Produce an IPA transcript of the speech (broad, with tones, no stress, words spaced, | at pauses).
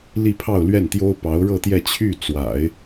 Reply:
li˥˧ pʰɑ˥˧ʊ̯lɥɛ˥˩nt̪jo˥ʊ̯ pɑ˧˥ʊ̯ɻɤ˥˧t̪jɛ˥˧ t͡ɕʰy˥˩ t͡swa̰˨˩˦ɪ̯